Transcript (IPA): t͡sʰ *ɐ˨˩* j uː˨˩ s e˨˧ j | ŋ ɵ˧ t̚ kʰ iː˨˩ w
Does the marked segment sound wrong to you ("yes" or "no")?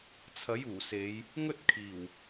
yes